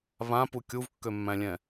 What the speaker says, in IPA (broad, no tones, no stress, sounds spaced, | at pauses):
β ã p u kʲ u v kː ø mː æ̃ lʲ ɛ̃